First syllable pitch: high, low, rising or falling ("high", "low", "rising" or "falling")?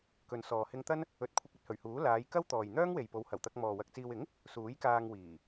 low